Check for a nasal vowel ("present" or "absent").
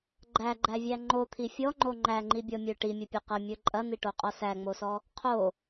absent